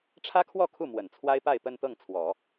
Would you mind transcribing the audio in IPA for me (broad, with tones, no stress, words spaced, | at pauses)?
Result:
ʈ͡ʂʰä˥kʰwɔ˥˧kʰu˥˩ mwə˨˩nt͡sʰwa˥ɪ̯pa˥˧ɪ̯ pə˥˧nt̪ɤ˥˩ŋt͡sʰwɔ˨˩˦